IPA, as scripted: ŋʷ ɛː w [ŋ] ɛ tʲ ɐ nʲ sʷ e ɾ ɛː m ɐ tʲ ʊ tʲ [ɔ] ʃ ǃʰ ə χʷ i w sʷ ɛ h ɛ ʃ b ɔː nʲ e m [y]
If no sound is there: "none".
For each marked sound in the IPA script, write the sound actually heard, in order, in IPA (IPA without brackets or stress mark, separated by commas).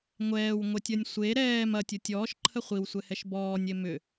ŋʷ, ɔː, ʏ